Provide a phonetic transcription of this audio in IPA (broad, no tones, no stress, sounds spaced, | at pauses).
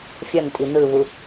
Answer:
fʲ ʌ n tʼ i n̪ ɯ β u